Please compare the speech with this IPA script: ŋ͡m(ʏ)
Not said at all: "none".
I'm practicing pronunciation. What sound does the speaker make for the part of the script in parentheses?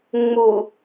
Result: u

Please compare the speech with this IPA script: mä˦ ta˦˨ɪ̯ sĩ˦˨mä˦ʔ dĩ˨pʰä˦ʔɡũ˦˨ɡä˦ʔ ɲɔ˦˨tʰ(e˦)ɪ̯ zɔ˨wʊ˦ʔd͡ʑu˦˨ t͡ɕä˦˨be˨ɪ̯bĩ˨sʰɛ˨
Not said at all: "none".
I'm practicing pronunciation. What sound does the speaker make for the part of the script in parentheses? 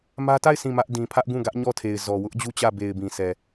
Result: e˨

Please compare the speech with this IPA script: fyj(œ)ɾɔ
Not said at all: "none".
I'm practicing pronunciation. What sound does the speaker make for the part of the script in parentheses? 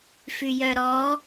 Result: œ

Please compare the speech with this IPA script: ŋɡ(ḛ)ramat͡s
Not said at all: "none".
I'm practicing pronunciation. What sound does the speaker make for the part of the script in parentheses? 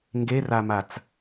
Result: e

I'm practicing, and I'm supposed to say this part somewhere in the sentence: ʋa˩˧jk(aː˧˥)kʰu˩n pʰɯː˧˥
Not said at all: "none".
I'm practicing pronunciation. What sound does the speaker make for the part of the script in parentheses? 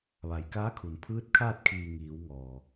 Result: aː˧˥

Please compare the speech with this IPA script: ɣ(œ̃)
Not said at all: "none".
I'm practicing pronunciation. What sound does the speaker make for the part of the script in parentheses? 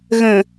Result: ə̃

